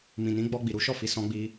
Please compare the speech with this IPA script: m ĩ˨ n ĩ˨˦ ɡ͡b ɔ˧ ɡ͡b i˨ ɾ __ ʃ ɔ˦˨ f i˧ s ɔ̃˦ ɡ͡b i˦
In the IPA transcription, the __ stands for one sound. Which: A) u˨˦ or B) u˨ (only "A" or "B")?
A